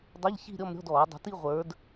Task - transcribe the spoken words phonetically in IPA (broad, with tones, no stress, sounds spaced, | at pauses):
dˤ ə˧˥˧ ʎ ç i̤˥˧ ɾʲ ɔ˥˧ m ɾʲ ɔ̤˧˥˧ d ɔː˨˩˦ dˤ ə̤˨˦ t i˥˧ ʁʷ ə˞˨˦ d